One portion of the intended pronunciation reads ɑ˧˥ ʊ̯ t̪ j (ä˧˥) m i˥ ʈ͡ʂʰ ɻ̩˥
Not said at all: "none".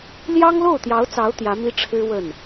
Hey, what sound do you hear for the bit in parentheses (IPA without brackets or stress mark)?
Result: ä˧˥